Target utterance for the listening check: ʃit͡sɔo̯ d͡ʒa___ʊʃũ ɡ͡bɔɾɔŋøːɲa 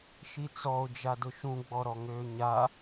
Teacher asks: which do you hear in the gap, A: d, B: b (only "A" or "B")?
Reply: A